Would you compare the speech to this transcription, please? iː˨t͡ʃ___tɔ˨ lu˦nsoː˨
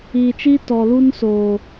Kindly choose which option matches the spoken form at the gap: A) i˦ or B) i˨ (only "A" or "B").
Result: A